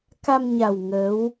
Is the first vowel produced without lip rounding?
yes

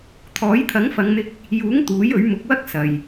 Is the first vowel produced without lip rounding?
no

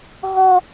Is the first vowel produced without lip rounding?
no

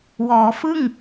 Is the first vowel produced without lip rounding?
no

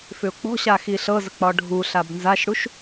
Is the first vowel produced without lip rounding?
no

